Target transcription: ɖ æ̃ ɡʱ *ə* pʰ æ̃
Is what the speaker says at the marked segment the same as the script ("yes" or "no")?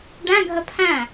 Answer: yes